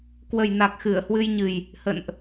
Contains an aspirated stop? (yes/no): no